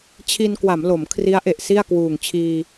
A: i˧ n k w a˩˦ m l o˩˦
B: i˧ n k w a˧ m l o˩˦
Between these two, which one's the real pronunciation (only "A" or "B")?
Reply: A